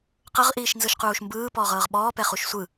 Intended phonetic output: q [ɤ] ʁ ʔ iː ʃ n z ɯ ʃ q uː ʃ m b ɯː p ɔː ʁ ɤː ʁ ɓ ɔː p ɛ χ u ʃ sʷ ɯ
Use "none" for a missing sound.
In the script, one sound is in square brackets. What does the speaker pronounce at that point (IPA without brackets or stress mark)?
ɤ